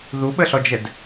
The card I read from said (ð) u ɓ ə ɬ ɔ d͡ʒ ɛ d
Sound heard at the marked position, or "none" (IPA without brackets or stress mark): ð